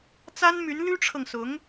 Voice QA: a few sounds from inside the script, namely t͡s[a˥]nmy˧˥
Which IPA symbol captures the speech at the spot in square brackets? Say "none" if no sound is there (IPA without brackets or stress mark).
a˥